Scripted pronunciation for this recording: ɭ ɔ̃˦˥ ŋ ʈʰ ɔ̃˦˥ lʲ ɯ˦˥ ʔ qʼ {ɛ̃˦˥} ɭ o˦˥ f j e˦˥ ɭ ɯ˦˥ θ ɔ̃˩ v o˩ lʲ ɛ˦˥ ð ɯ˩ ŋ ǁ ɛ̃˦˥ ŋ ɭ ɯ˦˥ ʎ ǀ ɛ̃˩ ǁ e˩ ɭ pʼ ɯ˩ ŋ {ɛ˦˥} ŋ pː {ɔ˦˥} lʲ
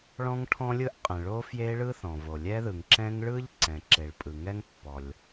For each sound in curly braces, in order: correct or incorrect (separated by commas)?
incorrect, correct, incorrect